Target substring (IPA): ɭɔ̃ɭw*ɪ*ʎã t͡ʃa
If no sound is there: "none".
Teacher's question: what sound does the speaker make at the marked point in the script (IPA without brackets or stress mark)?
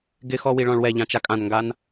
ɛ